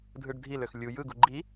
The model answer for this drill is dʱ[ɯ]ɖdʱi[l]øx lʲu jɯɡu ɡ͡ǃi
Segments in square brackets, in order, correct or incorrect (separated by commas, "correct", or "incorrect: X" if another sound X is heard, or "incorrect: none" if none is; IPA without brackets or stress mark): correct, correct